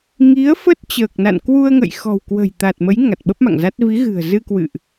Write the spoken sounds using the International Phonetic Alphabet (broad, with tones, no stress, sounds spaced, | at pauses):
ŋ i˨˦ ə̯ f ə˦˥ t̚ t͡ɕ əː˨˩ k̚ n a̰˧˨ n k w u˧ ə̯ ŋ ə̰˧˨ j x ɔ̤˨˩ w k w ə̤˨˩ j t̪ a˨˩ t̚ m ə˨˦ j ŋ a˨˩ t̚ ɓ ə˦˥ p̚ m a̰˧˨ ŋ z a˦˥ t̚ v i˨˦ ɣ ɨ̤˨˩ ə̯ z ɨ˧ k w ɨ̰˧˨ ʔ